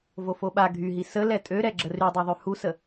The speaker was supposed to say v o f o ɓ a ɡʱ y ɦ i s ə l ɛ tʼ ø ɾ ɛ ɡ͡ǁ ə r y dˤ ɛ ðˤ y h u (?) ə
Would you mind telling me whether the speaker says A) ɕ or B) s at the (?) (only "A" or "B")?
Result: B